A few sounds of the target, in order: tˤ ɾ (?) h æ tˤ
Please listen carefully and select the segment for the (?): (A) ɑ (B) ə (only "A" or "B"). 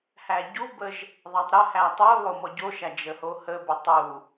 B